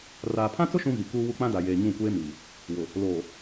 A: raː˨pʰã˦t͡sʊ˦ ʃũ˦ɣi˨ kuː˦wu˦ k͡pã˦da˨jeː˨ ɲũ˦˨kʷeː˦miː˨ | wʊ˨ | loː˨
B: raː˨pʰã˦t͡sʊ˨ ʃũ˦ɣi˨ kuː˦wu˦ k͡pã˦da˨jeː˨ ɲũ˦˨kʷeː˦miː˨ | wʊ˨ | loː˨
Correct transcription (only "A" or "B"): A